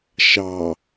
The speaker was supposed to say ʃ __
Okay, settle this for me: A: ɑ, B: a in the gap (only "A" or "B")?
A